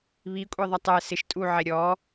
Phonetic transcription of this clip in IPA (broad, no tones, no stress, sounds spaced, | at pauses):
β i kʷʼ e ðˤ ɐ tˤ ɛ s ɪ ʃ tʼ u ʕ e ɾʲ ɔ